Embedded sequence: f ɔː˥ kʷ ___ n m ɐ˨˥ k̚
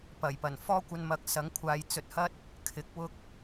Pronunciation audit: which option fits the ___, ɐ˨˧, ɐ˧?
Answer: ɐ˧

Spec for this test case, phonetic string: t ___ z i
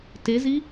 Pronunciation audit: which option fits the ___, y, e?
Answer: e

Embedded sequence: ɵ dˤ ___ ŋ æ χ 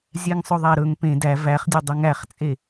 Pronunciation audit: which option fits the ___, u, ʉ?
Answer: ʉ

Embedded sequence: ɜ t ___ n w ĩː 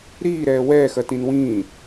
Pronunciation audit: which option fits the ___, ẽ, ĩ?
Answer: ĩ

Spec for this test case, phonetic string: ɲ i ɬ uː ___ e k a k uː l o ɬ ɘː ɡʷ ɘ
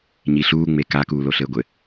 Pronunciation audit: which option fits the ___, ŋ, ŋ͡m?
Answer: ŋ͡m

